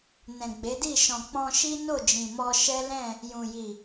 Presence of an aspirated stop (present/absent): absent